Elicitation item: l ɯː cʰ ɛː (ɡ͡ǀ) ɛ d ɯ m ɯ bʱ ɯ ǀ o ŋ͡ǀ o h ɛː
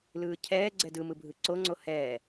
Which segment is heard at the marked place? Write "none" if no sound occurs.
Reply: ɡ͡ǀ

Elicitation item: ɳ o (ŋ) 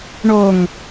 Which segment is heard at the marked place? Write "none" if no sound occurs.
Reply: ŋ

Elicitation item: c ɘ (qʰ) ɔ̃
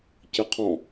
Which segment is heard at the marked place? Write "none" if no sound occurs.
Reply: qʰ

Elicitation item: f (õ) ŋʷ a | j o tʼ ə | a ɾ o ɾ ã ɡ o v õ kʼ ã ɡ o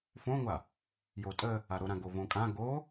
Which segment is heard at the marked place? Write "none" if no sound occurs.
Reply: õ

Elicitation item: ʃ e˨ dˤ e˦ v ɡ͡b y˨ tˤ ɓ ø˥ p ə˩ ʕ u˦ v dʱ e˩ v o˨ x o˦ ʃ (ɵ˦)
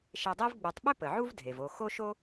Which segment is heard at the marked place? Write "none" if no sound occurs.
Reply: o˦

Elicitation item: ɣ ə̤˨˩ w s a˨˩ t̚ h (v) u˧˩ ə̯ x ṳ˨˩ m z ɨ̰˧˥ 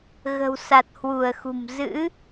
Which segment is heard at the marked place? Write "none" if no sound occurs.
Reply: w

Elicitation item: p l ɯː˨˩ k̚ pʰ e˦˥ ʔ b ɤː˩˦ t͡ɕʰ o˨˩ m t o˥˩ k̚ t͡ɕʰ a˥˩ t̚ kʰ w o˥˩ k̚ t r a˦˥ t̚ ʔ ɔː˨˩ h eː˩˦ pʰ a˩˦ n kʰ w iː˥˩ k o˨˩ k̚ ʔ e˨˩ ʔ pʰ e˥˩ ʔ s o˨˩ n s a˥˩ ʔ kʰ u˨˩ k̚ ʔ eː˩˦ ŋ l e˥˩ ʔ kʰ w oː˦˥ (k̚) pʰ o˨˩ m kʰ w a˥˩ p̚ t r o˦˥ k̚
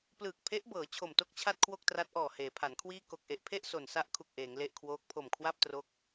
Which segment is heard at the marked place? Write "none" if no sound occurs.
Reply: k̚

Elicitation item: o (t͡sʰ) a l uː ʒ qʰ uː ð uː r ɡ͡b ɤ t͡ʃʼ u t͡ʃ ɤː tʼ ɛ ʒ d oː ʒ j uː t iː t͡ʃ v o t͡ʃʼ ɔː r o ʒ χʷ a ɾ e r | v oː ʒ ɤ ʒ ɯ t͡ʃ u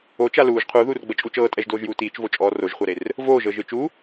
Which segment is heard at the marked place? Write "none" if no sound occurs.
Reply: t͡ʃ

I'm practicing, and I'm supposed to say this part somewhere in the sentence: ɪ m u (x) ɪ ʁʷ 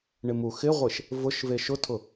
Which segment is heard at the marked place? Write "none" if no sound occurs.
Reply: x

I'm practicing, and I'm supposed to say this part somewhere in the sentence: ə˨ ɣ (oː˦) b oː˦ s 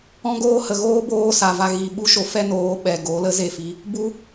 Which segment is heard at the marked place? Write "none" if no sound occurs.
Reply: oː˦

